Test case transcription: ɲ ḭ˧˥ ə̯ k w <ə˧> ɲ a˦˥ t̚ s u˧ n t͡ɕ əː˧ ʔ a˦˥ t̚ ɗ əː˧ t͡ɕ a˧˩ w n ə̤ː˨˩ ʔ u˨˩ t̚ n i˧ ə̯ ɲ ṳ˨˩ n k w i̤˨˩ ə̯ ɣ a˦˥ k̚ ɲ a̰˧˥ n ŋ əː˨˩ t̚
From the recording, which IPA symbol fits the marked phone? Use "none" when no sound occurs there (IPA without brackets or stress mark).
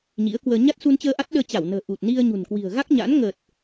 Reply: əː˧